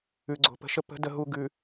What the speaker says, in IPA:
ʉ˨ ɡ͡ǀ o̤˨ p ə̤˨ ʃ ə˦ p ə̤˨˦ d ə˨ ɦ u˨ ɡ ʉ˨

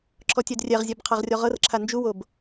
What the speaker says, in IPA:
ǁʰ ɔ tʲ ɛ d rʲ ɛ ʁ zʲ ɛ b qʰ a ʁ rʲ ɔ ʁ ɤ r ǁʰ a n d͡ʒ u w o b

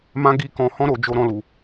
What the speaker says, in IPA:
m ã˦ ɡ i˦˨ k ɔ̃˧ h ɔ̃˧ ɾ o˨ d͡ʒ o˧ ɾ ɔ̃˧ l u˨

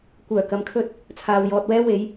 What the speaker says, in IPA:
kʷ œː˨˩ k ɐ˨˥ m kʰ ɵ˧ t̚ | t͡sʰ aː˨ w j ɔː˧ t̚ w ɛː˥ w e˨˧ j

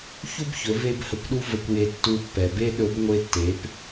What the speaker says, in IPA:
ç u˥ b ç ɵ˩˧ v e˥ b h ə˧˥ kʷ ɗ u˥ v ə˧ kʷ j e˧ tː u˧ pː ɛ˩ b e˥ ɗ ɵ˧˥ b ŋʷ e˧ tː e˩˧ p

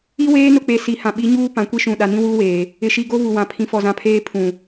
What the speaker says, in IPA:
i˦ w eː˦ n ʊ˦˨ k͡p e˨ s i˨ h ã˨ ɓ i˨˦ ɲ uː˦ p ã˨ kʷ i˦ ʃ ũ˨ ɗ a˨ n ĩ˦ w uː˦ w eː˨ | ɪ˨ ʃ i˨ ɡ o˦ β u˨ w ã˨ pʰ ĩ˨ f ɔ˨ z ã˨ pʰ eː˦ pʰ ũ˨

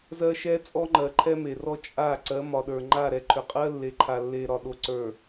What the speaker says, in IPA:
z ɜ˦ ʃ ɛ˦ t͡sʼ ɔ˦ ŋ͡ǃ ɜ˨ ǃʰ ɛ˦ m e˨ r ɔ˦ t͡ʃʼ a˦˨ ǀ ɜ˨˦ m ɒ˨ ɗ ə˞˨ ŋ͡ǃ a˦˨ ɾ ɛ˨ ǃʰ ʏ˨ qʼ ɜ˦ lː e˨ ǃʰ a˨ lː e˨ ɾ ɒ˨ ɗ o˨ ǀ ə˞˨

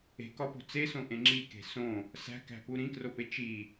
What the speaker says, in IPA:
e̤ k ɒ p o̤ t͡s e s õ ʔ ẽ ŋ͡ǁ i k e̤ s õ | s æ̤ k æ̤ p u ɾ ĩ k r o p e t͡ʃ i

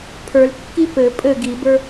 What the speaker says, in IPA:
pʰ ə˞ l kː i p ɘ pʼ ɘ ɡ i b ə˞

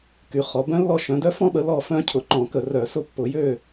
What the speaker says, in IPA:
k y˨˦ χ ɔ˨˦ b œ̃˦˥ lː ɔ˥˨ ʃ œ̃˨˦ d œ˦˥ f ɔ̃˦˥ ɓ ə˨˦ l ɔ˥˨ f œ̃˦˥ cʰ ʊ˧˩˧ ǃ ɔ̃˧˩˧ k ə˧˩˧ r œ˧˩˧ s ʊ˦˥ pː ʊ˧˩˧ j ø˥˨

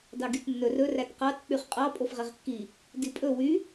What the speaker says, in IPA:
d ɑ ɡ y t nː ɵ r ɵ r æ t q ɑ t k͡p y χ qʼ ɑ pʼ o f ʁ e ʁ kː i | d i pʼ ɵ w y

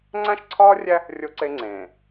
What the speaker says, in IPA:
ŋ͡ǀ æ̃˦ ʃ ǀʰ ɒː˦ rʲ æ˦ | rʲ o˦ ǀ e˦ ŋ͡ǀ ẽː˨

